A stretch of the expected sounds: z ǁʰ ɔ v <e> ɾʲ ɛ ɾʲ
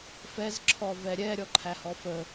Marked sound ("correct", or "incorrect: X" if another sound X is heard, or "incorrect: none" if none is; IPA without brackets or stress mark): incorrect: ɛ